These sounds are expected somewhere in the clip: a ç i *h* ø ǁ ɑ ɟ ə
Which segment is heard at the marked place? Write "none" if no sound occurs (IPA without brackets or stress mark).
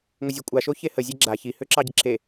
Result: h